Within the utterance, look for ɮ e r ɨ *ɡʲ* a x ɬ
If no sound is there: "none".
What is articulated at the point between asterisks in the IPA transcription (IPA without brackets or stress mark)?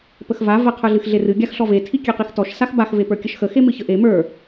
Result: ɡʲ